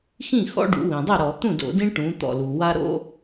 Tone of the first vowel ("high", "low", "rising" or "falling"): falling